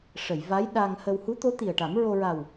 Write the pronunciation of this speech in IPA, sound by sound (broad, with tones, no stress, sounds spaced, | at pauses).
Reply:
ʂ ə˨˩˨ j v a˧˥ j ɗ a˧ ŋ h ə˧ w h u˧˥ t̪ o˧˥ t̪ i˨˩ ə̯ ʈ a˨˩˦ m ɹ o˧ ɹ a˨˩ w